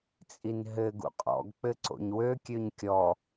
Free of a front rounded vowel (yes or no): no